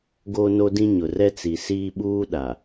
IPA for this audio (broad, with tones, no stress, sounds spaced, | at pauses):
ɡ oː˦ n o˦ d ĩ˦ ɲ ʊ˨ r ɛ˦ t͡s i˨ s iː˦ ɓ uː˦ ɗ a˨